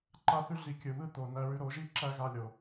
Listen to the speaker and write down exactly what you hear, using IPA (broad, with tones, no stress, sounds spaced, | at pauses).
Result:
ǃ a˧ θ ʉ˧ ɮ i˨ kʲ ɯ˨ β ɯ˦ t̪ o˨ n æ˧ ɹ ʉ˧ ɾ o˨˦ ʒ i˦ ǁ æ˦ ɣ a˧ lʲ o˨